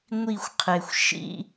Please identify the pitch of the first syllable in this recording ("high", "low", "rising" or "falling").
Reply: falling